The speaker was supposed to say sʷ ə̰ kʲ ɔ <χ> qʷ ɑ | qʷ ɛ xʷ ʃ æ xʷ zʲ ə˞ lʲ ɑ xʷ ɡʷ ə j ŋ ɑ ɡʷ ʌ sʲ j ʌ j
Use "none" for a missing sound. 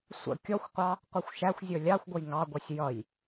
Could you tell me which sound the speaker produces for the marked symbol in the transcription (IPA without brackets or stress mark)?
xʷ